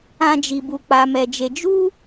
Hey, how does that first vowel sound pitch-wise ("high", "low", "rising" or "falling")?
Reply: high